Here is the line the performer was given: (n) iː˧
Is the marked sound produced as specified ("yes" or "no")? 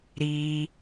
no